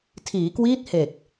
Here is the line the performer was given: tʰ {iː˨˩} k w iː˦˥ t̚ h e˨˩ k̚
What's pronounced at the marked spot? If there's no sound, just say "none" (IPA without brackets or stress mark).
iː˩˦